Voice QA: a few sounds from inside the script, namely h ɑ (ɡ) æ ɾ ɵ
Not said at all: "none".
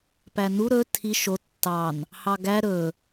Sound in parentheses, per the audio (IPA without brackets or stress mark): ɡ